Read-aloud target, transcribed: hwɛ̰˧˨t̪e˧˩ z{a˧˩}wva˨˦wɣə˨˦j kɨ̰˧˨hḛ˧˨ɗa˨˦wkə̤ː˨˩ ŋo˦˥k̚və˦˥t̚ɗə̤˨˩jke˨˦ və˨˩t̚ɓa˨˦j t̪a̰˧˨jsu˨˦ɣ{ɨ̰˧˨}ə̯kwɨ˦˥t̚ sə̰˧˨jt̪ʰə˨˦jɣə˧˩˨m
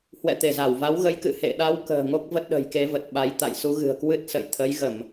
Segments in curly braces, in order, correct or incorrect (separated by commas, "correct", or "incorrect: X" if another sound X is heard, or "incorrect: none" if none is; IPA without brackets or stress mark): correct, incorrect: ɨ̤˨˩